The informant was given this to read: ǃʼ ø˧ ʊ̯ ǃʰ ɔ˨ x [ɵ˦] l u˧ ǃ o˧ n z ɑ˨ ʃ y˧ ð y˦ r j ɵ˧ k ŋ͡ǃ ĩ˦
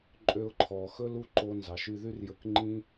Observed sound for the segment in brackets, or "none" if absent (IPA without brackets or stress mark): ɵ˦